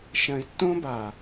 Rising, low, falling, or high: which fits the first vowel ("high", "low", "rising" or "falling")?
low